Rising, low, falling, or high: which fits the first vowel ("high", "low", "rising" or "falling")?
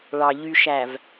low